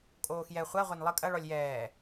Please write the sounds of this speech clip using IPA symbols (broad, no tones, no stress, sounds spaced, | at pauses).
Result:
kʼ oː x j ɛ χʷ a ʁʷ a n lˠ ɘ kʼ ɐ ɭ ɔ lʲ j ɛː